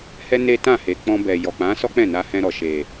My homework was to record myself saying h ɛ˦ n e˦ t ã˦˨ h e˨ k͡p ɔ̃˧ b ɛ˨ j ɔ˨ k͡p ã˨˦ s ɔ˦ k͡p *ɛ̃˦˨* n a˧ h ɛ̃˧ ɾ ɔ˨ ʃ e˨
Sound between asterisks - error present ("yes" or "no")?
no